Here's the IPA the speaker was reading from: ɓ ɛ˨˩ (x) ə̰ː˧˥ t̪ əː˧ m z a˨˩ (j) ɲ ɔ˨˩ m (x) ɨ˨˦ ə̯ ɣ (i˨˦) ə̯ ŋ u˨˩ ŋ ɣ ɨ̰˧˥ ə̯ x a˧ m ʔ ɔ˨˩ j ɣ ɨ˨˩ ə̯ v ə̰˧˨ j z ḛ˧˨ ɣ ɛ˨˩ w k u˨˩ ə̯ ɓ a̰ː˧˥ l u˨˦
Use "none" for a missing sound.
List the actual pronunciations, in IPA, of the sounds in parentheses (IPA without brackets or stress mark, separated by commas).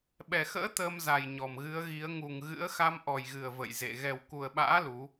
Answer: x, j, ɣ, i˨˦